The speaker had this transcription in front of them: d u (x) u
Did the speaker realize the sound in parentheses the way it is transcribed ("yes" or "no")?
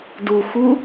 yes